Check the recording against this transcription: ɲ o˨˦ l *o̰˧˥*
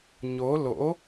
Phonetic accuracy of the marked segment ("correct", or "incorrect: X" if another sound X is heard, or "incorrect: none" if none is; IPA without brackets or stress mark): correct